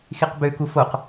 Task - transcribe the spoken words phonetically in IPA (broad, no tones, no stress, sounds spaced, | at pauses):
x i q b ø k u f o q